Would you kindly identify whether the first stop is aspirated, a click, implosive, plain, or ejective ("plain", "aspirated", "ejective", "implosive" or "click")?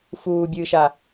plain